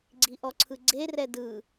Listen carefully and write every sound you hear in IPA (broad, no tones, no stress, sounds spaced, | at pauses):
ɡ͡ǀ i ʔ ɔ ǀʰ ɯ ɡ͡ǀ e r ɛ d ɯ